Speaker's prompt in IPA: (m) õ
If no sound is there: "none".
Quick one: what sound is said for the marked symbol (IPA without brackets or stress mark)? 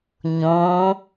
ɲ